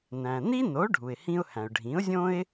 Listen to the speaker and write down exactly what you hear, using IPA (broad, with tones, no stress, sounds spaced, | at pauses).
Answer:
n æ̃˩ n i˥ n o˩˥ ɖʱ u˩ ɪ̯ h ĩ˧ ʊ̯ h æ̃˩ ʊ̯ ɖʱ ĩ˩˥ ʊ̯ zʲ õ˥ ɪ̯